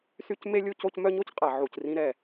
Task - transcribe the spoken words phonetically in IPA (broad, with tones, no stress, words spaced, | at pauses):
sy˦cme˦lʲu˦ co˦c mœ˦ɲo˦cqʼa˨ʕu˨c rĩ˦ɾɛ˦˨